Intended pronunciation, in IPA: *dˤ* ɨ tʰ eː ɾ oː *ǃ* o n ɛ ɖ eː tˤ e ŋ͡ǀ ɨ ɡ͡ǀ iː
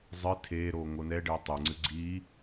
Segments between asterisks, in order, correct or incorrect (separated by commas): incorrect, incorrect